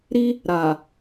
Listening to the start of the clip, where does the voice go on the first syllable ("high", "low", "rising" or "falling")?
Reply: high